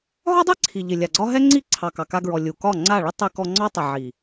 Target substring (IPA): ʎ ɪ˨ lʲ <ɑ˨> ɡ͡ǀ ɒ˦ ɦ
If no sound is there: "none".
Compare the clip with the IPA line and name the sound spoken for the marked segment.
a˨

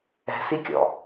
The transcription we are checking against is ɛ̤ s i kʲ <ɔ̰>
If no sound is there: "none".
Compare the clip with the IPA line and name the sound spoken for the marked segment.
ɔ̰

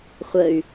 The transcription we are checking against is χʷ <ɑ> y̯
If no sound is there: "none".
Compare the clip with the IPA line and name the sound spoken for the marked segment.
ə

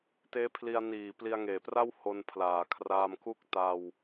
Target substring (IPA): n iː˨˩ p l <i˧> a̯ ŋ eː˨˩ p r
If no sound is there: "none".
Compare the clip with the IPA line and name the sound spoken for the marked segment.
i˧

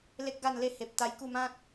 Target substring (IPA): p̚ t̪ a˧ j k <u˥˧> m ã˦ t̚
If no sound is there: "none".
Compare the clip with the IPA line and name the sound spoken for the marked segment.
u˥˧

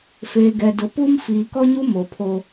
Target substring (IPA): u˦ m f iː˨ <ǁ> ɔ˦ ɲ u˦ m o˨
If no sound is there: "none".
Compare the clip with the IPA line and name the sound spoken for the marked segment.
k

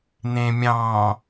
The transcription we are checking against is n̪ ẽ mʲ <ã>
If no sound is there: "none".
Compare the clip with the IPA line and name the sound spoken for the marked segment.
ɑ̃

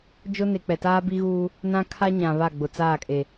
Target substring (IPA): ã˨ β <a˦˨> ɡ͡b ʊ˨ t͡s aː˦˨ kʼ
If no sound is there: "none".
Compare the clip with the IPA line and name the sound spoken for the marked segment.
a˦˨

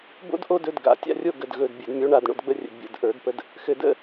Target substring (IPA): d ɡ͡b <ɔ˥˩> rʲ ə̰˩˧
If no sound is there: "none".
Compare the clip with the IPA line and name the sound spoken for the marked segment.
ə˥˩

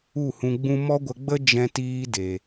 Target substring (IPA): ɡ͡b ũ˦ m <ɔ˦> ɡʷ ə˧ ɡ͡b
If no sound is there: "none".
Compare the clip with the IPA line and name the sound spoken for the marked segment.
ɔ˦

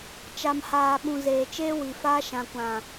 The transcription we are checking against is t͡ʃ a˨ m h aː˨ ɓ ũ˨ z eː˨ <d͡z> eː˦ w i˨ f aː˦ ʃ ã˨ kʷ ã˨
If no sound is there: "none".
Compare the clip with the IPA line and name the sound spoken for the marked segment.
t͡ʃ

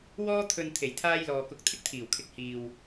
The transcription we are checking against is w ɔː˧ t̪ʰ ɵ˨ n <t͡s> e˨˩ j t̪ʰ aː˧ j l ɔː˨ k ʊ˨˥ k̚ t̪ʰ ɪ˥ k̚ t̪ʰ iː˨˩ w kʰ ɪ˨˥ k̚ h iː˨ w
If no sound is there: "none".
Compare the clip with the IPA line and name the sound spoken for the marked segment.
t̪ʰ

